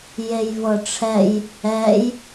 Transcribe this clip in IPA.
j e j v ɤ ʈ͡ʂʰ ɛ j | ɛ j

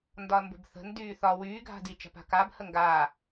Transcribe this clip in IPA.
n d ɒ ɐ̯ m b ə̤ b θ ə̤ n d yː θ ɒ w yː ɡʱ a̤ d i t͡ʃ a̤ p a̤ k a b h ə ŋ ɡ aː

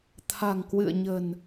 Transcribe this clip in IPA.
t̪ʰ a̤˨˩ ŋ k w ɨ̰˧˨ ə̯ ɲ ə̤˨˩ n

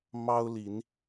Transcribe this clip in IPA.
m ɑ˦ ʊ̯ l i˨˦ n

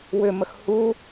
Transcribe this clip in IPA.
w ʏ m ə x h u

